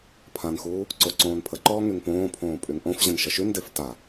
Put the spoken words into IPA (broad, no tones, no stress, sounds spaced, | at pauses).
pʰ ã n x uː | ǀ o ǀ õː n pʰ ə ǃ ɔː ŋ y ŋ p õː pʰ õː pʼ y ŋ ʔ õ f ʑ ə̃ n ʃ ə ʃ y n d e f t a